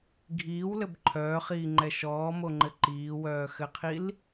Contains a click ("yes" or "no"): yes